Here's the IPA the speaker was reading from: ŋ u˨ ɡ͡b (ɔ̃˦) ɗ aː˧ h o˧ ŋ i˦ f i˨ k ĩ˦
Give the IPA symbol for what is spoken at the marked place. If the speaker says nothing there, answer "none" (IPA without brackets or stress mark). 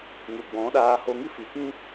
ɔ̃˨˦